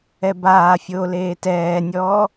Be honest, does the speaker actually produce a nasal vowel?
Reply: no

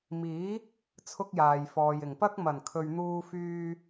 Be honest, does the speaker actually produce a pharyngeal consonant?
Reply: no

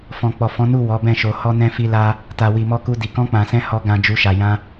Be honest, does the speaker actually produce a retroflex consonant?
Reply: no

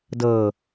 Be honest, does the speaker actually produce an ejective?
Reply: no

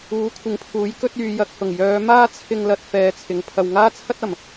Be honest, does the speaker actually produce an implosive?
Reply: no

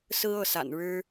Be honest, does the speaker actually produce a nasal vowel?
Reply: no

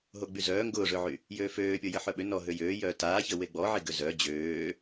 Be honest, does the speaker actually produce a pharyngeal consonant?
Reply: yes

